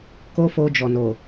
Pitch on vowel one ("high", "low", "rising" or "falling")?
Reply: high